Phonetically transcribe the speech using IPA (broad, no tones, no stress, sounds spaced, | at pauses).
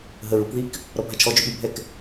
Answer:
ɦ ə ɹ u k ð i k | ɾ ɔ bʱ a t͡ʃʰ ɔ d͡ʒ ø ɓ y bʱ ɛ k